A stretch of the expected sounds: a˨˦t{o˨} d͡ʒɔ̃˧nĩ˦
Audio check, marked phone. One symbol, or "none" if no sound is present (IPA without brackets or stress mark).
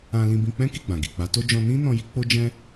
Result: o˦